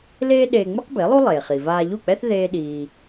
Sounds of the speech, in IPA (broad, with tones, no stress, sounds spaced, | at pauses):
l eː˥ ɗ eː˧ ŋ͡m ɯ˥ q b e˩˥ lˠ u˥ lˠ eː˩ χ i˩ v aː˧ ʎ u˥˩ k͡p ɛ˥ θ ð eː˥ ɗ iː˧